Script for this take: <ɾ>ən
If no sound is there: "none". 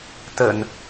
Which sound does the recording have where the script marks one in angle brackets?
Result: t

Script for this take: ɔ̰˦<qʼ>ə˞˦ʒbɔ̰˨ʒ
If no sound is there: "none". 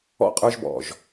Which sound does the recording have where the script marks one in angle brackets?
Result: qʼ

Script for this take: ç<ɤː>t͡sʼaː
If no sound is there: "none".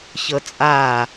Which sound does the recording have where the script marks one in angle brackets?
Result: ɤ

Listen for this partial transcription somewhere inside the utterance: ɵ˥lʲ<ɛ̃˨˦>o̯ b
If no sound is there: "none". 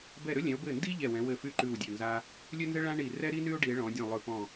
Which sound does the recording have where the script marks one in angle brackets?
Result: ɛ̃˨˦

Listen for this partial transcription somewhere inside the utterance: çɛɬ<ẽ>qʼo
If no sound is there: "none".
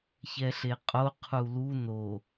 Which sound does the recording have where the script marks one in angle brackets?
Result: e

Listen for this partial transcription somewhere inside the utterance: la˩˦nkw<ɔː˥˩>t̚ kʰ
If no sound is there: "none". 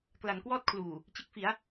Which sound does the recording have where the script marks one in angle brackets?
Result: ɔː˥˩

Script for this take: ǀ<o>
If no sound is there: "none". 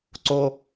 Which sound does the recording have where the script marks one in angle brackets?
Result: o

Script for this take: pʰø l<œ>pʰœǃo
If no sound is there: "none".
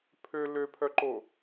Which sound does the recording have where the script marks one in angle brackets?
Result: ø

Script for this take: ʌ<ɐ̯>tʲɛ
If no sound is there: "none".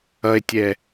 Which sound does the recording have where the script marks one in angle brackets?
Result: e̯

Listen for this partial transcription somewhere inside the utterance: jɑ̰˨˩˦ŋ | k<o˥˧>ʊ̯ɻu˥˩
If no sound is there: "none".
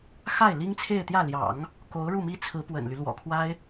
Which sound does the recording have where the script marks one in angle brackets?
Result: o˧˥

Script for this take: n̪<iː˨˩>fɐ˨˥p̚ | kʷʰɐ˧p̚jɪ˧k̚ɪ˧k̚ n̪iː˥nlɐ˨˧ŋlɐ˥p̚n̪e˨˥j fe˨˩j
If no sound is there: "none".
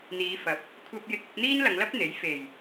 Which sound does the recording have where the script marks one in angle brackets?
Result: iː˨˧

